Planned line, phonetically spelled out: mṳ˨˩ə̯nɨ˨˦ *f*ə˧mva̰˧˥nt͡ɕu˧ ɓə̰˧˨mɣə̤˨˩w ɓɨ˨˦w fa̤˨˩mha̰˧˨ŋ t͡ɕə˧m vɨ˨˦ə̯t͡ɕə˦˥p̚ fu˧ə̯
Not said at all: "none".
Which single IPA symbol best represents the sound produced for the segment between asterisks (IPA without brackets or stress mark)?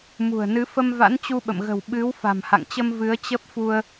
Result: f